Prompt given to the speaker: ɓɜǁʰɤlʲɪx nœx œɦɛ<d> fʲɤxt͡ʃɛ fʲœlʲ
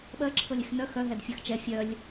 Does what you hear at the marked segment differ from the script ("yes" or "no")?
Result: no